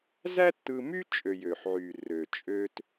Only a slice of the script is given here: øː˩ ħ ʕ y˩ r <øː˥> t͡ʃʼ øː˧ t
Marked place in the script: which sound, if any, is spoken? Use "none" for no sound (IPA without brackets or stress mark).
øː˩